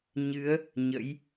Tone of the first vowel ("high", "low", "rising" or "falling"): rising